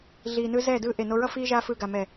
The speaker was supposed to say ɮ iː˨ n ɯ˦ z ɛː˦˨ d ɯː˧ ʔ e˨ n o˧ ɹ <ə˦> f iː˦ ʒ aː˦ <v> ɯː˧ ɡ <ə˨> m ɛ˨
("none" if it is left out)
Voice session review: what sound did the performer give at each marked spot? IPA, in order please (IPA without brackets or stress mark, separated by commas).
ʌ˦, f, a˨